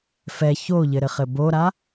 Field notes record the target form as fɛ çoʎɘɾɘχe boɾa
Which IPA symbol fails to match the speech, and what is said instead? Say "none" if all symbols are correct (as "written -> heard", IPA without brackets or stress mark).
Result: e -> ɘ